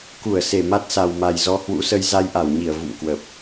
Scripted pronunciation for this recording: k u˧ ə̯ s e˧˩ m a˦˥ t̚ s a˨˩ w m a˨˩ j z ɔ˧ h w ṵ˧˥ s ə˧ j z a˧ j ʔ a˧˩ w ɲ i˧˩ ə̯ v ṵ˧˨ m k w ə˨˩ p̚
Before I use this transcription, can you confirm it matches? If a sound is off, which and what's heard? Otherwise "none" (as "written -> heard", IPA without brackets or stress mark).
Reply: u˧ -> u˧˩